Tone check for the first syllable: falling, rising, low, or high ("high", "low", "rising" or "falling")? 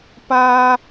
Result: high